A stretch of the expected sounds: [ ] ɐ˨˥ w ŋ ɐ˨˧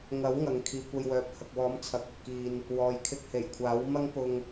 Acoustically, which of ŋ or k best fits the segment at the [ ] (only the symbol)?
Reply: ŋ